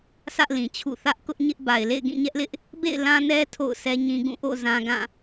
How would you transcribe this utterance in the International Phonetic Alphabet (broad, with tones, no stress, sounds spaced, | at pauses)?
s ä˦ ʔ l ĩ˨ t͡ɕʰ ṵ˦˨ θ ä˦ ʔ k ʊ˦ ʔ ɲ ɪ˦ ʔ b a˨ ɪ̯ l ḛ˦˨ ɪ̯ ɡ ĩ˦˨ ɲ ɛ˦ ʔ l ɪ˦ ʔ | b ḛ˦˨ ɪ̯ l ã˦ n ɛ˦ tʰ o̰˦˨ ʊ̯ s ɛ˦ ɲ ĩ˦ ɡ ũ˦˨ ʔ o̰˦˨ z ã˦ ɡ ã˦˨